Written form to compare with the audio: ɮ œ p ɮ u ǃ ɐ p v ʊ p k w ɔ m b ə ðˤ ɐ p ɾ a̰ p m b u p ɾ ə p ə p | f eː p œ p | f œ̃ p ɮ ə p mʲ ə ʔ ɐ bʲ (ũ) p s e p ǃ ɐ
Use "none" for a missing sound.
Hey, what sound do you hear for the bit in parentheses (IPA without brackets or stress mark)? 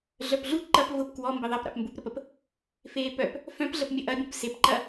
ũ